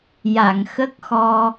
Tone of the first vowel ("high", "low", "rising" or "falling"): low